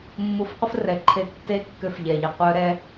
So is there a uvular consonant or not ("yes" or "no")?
yes